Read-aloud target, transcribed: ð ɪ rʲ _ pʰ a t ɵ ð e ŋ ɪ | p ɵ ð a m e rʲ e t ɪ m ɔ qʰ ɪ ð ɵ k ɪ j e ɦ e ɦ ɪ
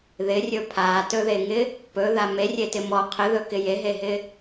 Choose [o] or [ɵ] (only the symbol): ɵ